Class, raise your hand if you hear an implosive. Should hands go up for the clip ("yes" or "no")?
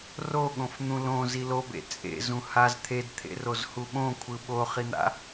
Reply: yes